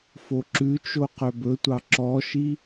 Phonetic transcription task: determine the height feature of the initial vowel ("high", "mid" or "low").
mid